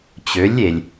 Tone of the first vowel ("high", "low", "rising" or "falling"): rising